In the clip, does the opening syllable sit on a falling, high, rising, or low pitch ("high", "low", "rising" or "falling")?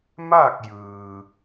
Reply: falling